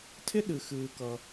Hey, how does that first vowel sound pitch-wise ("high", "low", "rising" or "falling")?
high